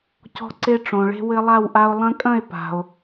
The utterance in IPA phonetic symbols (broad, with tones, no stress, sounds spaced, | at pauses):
c ɔ̤˦ ǀ e˦ ʈ͡ʂ õ˩ ɭ e̤˦ w ɘ˦ lˠ a˥˨ w ʔ a˦ o̯ lˠ ɐ̃˦ kʼ ɐ̃˥˨ e̯ p a̤˩ o̯